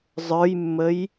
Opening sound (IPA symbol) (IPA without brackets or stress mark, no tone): zˤ